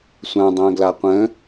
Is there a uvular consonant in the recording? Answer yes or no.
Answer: yes